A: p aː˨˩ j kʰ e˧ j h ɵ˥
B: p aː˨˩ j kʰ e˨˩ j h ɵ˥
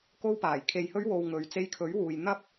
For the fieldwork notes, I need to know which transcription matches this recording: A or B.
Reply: A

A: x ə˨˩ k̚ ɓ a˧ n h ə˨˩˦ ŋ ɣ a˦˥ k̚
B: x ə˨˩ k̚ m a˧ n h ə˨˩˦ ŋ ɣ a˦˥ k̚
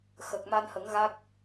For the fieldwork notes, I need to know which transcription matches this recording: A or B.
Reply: B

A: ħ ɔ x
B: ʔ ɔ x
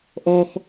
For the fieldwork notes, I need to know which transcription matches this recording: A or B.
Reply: B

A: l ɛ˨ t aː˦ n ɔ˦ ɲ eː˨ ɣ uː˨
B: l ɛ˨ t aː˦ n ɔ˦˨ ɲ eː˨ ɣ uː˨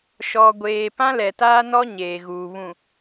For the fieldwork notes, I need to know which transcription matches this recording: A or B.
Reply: A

